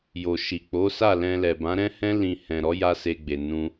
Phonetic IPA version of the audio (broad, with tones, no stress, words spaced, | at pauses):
jo˨ʃi˨k͡po˨˦sa˦˨ lɛ̃˧ lɛ˨bã˨˦ɾɛ̃˦hɛ̃˦ lĩ˧ hɛ̃˨ɾɔ˨˦ ja˦se˧ɡ͡be˨nũ˧